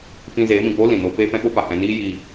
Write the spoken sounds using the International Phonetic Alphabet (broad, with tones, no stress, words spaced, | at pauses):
fĩ˧zeː˨˦mĩ˨k͡po˦ lĩ˨no˦ peː˦fɛ̃˦ɓo˦ pa˨hɛ̃˧ niː˦ji˧